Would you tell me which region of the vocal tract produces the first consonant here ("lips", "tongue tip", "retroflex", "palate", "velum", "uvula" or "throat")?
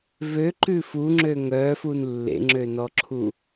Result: lips